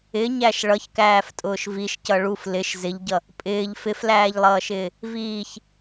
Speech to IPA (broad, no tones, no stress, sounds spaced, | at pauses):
ɪ ɲ æ ʃ ɭ ʌ ç k æː f tʼ ʊː ʃ v i ʃ c ʌ ɭ u f l ɪ ʃ z ɪ ʎ ɟ ʌ | pʼ ɪː ʎ f ɪ f l æː ʎ lˠ ʌː ʃ ɪː | v iː ç